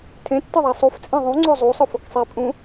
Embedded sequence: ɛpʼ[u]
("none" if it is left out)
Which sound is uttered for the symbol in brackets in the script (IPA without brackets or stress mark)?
ũ